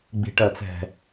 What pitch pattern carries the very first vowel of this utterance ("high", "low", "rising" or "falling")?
low